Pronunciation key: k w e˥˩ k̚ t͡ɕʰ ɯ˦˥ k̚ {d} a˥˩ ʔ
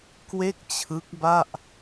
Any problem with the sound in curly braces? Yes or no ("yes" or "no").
yes